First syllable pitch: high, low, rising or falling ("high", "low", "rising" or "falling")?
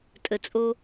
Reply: low